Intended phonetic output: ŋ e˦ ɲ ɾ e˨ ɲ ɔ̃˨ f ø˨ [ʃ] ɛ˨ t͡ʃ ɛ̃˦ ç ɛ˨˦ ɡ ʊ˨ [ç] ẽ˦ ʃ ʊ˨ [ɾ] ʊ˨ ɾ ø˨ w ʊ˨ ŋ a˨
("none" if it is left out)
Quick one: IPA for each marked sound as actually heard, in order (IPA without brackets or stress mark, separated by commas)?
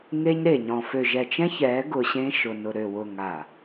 ʒ, ɕ, n